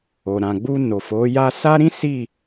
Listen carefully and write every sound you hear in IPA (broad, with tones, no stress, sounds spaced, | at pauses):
o˨ ɾ ã˨ ɡ͡b u˧ n o˨ f o˨˦ j a˦ s a˦ ɾ ĩ˦ s i˦˨